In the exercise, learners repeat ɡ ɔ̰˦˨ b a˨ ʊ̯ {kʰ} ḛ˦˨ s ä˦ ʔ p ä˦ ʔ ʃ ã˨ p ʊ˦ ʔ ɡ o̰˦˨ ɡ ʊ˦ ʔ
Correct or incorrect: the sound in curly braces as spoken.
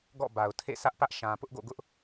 incorrect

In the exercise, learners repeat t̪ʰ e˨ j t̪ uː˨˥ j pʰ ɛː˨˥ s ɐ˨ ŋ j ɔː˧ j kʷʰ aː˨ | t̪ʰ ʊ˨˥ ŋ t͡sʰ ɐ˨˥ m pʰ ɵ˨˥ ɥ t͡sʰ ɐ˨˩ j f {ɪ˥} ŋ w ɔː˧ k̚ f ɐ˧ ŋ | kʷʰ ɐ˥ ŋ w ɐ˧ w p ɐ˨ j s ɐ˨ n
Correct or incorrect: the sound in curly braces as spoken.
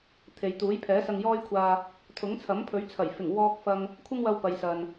incorrect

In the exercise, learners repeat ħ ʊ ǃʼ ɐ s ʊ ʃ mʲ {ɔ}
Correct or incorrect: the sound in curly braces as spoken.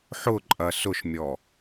correct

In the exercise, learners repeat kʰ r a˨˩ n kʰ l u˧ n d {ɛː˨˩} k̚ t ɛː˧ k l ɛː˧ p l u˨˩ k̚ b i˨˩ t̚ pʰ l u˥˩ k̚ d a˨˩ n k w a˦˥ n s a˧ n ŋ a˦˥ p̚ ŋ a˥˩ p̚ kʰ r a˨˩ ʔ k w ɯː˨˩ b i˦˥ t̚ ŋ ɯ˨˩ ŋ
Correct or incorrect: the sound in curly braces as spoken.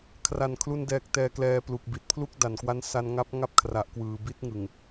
correct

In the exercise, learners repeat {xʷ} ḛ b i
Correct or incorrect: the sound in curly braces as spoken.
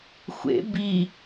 correct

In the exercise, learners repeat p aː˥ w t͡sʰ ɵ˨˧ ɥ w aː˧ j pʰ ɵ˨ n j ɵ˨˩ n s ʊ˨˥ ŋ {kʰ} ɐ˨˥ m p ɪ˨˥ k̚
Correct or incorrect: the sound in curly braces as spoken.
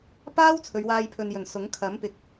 correct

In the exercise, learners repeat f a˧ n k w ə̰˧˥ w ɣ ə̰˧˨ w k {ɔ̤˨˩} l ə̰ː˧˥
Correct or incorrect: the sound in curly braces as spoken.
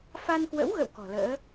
correct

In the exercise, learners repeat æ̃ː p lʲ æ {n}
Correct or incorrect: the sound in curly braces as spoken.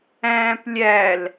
incorrect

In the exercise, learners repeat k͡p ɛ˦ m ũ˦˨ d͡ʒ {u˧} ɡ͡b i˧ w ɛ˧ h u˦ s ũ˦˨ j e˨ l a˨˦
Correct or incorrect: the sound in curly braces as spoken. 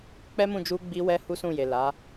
correct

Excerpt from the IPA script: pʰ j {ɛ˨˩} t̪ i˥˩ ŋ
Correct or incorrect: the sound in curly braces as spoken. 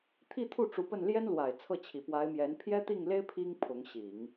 incorrect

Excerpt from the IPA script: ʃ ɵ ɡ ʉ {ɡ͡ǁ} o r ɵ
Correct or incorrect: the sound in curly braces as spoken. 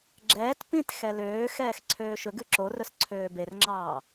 incorrect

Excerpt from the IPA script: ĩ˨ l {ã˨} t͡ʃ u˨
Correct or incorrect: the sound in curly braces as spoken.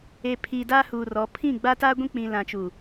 correct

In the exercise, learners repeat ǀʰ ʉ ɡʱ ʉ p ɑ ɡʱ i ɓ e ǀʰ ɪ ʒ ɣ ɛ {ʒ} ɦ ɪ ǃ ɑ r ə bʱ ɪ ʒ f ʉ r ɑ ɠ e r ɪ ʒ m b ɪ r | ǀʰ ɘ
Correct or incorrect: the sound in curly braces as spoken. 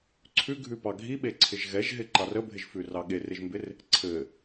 correct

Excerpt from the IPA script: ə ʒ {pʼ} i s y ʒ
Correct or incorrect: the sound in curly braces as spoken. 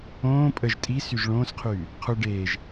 incorrect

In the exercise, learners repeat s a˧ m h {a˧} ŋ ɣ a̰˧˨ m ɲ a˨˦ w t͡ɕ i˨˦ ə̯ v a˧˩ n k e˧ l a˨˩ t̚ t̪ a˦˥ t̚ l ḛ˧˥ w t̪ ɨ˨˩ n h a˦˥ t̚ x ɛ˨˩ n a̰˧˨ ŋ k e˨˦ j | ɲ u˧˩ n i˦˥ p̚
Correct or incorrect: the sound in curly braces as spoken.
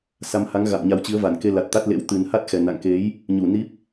incorrect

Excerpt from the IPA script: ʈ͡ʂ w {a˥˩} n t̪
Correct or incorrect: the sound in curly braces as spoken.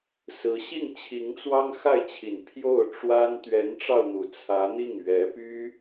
incorrect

